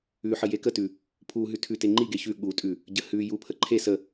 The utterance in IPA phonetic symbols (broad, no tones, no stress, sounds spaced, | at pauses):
ʉ ħ ə j e k ə t ʉ | pʰ u ɦ ʉ tʰ ʉ t e ŋ͡ǃ i ɡ e ç ʉ ɠ u tʼ ʉ | ɟ ə h ʉ j u pʰ ə ǃʰ e s ə